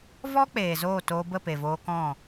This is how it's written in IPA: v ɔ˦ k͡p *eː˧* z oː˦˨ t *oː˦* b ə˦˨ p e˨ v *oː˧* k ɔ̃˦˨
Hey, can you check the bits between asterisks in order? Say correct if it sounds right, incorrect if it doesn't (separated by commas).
incorrect, incorrect, correct